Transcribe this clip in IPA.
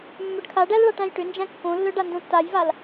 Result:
mː œ ɖ kʰ a ɖ æ l ɭ a ʈ æ̃ j ʈ ʏ n d͡ʒ æ̃ kː õ lː œ ɖ a n d õ tː a j v a l

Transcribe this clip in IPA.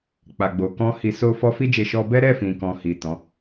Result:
k͡p a˧ ɡ͡b o˧ k ɔ̃˦ h i˧ s o˦ f ɔ˦ f i˦ d͡ʒ e˧ ʃ ɔ˧ b ɛ˦ ɾ ɛ˦˨ f ĩ˨ k ɔ̃˨ h i˨ t ɔ̃˨˦

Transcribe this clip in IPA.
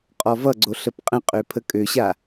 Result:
qʼ ɔ v ʌ ɡ͡ǀ o ɬ ə p qʼ ə̃ qʼ ø pʰ ə kʼ ø ɕ a

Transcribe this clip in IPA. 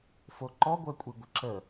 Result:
f o ǃ ɔ ɡʷ əː kʷʼ i ɡʷ ə ǁ ə

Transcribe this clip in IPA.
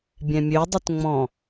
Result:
bʲ ɛ̃ mʲ ø dˤ ɨ t ŋ͡m ɔ̃

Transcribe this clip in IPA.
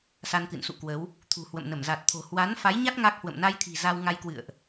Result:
s a˧ n k ɨ̰˧˨ n s ṵ˧˨ k w ə˨˦ w | t̪ʰ ṳ˨˩ h w ə̰˧˨ m n ə˧˩ m z a˨˩ t̚ t̪ʰ o̤˨˩ h w a˨˦ n f a˨˦ j ɲ a˦˥ t̚ ŋ a˦˥ k̚ h w ə̰˧˨ m n a˧ j t̪ʰ i̤˨˩ z a˧ w ŋ a˧ j k w ɨ̰˧˨ ə̯ ʔ

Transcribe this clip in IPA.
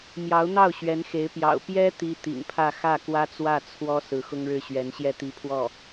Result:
m j ɑ˧˥ ʊ̯ n̪ ɑ˥˩ ʊ̯ ɕ ɥ ɛ˧˥ n x e˧˥ ɪ̯ p j ɑ̰˨˩ ʊ̯ p j ɛ˥ t̪ i˥ t̪ ḭ˨˩ ŋ pʰ ä˥˧ x ä˥˩ k w ä˥ t͡s w ä˥˩ t͡sʰ w ɔ˥ s ɹ̩˧˥ x ʊ˥ ŋ ɻ ɻ̩˥˩ ɕ ɥ ɛ˧˥ n ɕ j ɛ˥˩ t̪ i˧˥ pʰ w ɔ˥˩

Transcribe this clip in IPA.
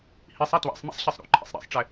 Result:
h i sˤ ɛ t w æ̰ sˤ m ḭ sˤ ɕ i sˤ ɾ ṵ ǃʰ ḭ sˤ ɾ ḭ sˤ ʈ͡ʂ ɛ

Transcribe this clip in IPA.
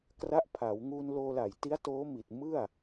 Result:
k r a˦˥ ʔ pʰ a˩˦ w ŋ uː˧ n l oː˧ l a˨˩ j t i˦˥ a̯ t oː˦˥ m i˨˩ t̚ m ɯ˥˩ a̯

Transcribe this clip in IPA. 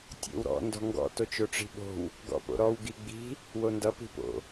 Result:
tʲ o̰ w ɾ ɔ̰ n d ɔ̤ ŋ ɡ ɔ̰ t o t͡ʃ o ʈ͡ʂ i̤ ɓ o̤ w | ɡ ɔ̰ p o̰ ɾ ɔ w ɡ i ɡ͡b i̤ | w o n d ʌ p i̤ p o̰

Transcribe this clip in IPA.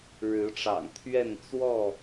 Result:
ɻ ɻ̩˨˦ ʈ͡ʂ ɑ̰˨˩ ŋ t̪ʰ ɥ ɛ˥˨ n t͡s w ɔ˥˨

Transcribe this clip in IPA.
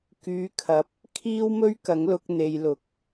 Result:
k yː˨˧ kʰ ɐ˨˥ p̚ | kʰ iː˥ w m ɵ˥ ɥ k ɐ˨˥ ŋ l ʊ˧ k̚ n̪ e˨ j l ʊ˨ k̚

